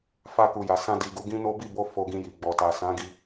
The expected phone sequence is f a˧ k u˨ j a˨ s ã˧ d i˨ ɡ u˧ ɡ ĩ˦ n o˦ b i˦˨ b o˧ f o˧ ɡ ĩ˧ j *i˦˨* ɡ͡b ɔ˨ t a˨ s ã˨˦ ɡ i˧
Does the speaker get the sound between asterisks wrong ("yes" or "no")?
yes